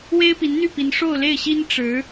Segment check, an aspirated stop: absent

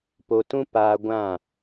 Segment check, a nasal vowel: present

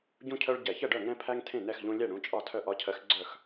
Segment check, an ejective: present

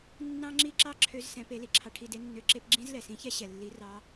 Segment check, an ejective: absent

